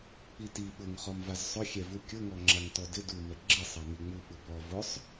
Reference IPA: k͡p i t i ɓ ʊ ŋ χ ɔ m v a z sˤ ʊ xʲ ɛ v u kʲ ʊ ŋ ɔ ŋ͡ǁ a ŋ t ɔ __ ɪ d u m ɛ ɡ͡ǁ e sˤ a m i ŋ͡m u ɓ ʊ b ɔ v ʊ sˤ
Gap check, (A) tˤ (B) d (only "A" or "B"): B